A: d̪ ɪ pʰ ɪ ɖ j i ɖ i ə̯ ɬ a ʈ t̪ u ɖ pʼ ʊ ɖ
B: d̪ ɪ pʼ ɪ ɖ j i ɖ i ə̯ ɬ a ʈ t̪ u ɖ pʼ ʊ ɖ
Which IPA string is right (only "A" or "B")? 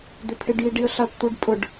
A